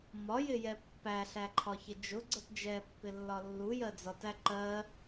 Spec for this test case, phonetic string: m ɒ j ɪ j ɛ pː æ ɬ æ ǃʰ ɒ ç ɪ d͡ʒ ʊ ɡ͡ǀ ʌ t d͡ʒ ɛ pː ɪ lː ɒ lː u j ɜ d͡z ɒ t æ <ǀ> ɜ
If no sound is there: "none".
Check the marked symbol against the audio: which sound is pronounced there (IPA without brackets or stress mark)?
ǃ